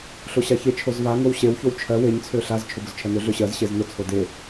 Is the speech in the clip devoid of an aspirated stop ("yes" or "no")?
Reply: no